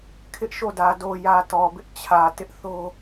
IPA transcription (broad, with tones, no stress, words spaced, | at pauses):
kʰɪ˦ʔʃo˦˨dä˨ do˨jä˨ tɔ˨bɪ˦ʔ t͡ɕʰä˨ tɪ˦ʔθo˦